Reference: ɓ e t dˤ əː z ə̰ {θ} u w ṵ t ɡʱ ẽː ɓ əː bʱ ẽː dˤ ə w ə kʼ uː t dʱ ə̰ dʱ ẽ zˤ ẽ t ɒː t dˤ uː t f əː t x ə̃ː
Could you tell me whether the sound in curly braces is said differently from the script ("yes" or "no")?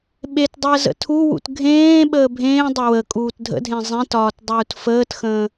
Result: yes